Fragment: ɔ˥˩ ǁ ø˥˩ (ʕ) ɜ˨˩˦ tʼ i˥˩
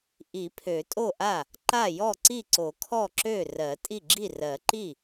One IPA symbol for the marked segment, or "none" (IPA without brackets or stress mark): r